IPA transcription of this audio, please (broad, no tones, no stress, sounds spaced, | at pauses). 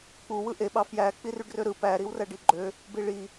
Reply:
k͡p u w ɯ ʔ e ɓ ɑ f j æ k͡p i r y ɖ r ø ɾ ɯ p æ ɾ i w r æ ɖ i ɡ͡ǃ ø | b i ɭ i